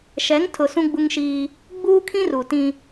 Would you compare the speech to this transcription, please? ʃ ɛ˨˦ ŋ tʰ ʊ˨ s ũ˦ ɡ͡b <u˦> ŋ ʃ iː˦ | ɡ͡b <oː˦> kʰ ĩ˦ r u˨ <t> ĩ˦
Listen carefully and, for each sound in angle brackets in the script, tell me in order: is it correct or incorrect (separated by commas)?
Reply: correct, incorrect, correct